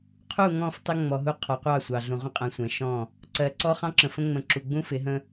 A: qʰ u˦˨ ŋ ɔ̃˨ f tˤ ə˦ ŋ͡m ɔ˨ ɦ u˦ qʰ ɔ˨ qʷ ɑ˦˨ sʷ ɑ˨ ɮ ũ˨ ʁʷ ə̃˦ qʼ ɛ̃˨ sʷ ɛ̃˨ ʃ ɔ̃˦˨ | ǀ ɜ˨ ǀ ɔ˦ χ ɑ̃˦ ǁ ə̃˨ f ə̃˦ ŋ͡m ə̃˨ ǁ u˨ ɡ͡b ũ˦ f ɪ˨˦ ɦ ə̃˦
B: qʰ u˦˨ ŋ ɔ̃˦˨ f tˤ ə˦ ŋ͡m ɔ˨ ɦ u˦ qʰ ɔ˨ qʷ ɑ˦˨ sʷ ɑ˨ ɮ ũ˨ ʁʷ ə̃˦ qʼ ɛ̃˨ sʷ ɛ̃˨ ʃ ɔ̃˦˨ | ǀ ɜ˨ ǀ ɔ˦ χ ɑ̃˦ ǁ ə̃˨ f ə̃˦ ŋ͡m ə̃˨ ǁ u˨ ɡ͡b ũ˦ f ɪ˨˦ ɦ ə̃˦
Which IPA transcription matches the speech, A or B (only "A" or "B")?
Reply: B